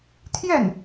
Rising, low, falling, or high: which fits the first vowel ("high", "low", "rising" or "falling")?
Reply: falling